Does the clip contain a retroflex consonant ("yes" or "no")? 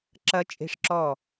yes